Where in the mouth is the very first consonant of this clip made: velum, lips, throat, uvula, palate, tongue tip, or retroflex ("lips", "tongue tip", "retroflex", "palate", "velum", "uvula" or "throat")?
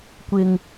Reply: velum